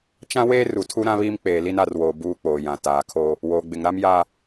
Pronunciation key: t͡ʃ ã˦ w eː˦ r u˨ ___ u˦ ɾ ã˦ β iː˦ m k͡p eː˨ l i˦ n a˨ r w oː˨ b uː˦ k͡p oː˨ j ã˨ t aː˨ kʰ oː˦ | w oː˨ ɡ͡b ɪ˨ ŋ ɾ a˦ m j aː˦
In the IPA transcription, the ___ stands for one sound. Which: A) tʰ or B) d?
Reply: A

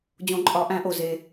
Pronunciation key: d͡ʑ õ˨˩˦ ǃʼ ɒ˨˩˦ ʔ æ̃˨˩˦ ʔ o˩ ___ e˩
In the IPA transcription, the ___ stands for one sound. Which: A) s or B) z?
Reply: B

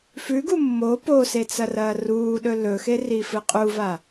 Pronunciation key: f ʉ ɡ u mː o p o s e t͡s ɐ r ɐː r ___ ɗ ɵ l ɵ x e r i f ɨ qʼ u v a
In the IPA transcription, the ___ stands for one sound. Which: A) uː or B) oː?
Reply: A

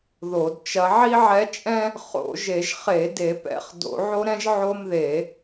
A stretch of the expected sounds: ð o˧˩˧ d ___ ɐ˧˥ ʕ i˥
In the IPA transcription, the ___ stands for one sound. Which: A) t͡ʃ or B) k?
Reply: A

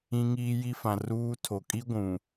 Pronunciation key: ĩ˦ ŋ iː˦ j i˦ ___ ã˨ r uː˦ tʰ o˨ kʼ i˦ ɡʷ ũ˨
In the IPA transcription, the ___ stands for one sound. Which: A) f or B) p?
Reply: A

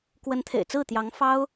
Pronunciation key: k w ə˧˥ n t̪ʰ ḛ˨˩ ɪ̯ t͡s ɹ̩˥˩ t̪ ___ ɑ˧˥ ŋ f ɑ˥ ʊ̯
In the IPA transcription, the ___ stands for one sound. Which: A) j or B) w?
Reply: A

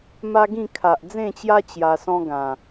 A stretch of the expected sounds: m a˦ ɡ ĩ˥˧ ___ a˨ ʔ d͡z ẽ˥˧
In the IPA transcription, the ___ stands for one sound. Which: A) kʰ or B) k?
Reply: A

